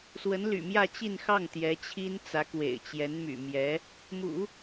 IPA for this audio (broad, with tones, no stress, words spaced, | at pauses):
swə˧˥nly̰˨˩mjä˥˧ t͡ɕi˥˧nxɑ˥˩ŋ t̪jɛ˧˥ t͡ɕʰi˥nt͡sä˧˥kwḛ˨˩ɪ̯t͡ɕjɛ˧˥n my̰˨˩mjɛ˧˥ | mṵ˨˩˦